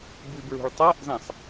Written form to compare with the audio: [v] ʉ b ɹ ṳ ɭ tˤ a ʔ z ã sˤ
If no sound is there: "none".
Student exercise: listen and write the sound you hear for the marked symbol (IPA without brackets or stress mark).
b